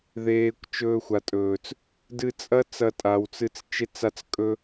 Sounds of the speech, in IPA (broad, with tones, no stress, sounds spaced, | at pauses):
ð eː˨ kʷ t͡ʃ ɵː˧ xʷ a˨ tʼ ɵː˨ t͡s | d ɨ˧ t͡sʼ ɐ˦ t͡s ɐ˧ tʼ a˨ w t͡s ɨ˧ t͡s t͡ʃ e˦ t͡s a˦ t͡s kʼ ɵ˦